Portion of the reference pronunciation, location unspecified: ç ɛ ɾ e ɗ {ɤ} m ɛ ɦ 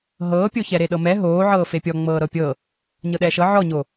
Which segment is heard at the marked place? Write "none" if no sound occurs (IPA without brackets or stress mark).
ɤ